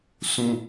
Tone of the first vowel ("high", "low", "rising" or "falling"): high